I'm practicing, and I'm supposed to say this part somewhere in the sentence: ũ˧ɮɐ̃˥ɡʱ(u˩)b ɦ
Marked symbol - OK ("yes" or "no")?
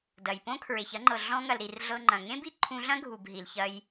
yes